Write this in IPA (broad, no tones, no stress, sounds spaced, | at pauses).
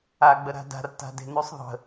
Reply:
a ɡ͡b ə ɾ a̤ d a̤ r t a̤ d e̤ n ʉ sˤ ðˤ ə̤